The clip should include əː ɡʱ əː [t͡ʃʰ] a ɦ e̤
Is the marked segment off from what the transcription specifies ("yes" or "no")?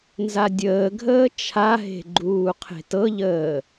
no